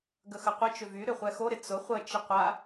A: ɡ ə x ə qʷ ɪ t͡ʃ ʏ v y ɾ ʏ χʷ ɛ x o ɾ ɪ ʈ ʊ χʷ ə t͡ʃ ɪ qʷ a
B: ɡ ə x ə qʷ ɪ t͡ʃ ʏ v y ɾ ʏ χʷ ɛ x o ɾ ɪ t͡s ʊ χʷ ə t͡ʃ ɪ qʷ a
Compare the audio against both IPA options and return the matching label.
B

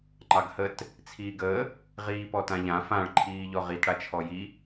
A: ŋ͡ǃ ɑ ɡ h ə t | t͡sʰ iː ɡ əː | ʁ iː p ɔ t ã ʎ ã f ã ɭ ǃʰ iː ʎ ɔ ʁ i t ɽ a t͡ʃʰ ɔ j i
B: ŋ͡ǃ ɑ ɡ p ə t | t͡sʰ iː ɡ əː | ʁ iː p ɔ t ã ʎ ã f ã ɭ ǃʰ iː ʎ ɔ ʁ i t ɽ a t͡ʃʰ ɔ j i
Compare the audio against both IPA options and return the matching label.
A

